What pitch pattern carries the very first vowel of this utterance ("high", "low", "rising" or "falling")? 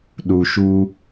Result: low